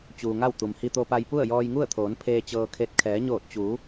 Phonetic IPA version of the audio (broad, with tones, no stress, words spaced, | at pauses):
t͡ɕuː˩ŋa˥˨w t̪u˩mhi˧t̪o˧pa˧j pu˥˨ə̯jɔː˧jŋu˥˨ə̯t̪ʰoː˩˧n pʰeː˧t͡ɕɤː˧kʰe˧t̚ kʰɛː˩˧ɲoː˧˩t̚t͡ɕuː˩˧